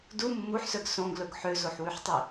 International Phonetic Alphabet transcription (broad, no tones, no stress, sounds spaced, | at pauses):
d u mː u ħ s œ ɡ s õ ɡ l ɵ ɡ ħ ø z o ħ w ʉ ħ tˤ i